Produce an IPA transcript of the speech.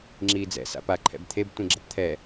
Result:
ŋ͡ǁ iː d͡z ɛ̰ s a̰ p a ǃʰ ɛ̰ b t̪ʰ e b tʷ ĩ ɡ͡ǁ ʌ p t̪ʰ ɛ

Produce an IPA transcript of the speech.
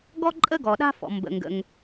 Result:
ɡ ɔ˦ ǃʼ ə˦ ɡ ɔ˩ ɗ a̤˦ f ɔ̰˩ m b ə̰˩ ŋ ɡ ə̰˩ ŋ

